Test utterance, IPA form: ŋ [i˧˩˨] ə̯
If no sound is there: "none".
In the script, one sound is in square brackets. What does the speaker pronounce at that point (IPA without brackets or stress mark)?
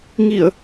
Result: i˧˩˨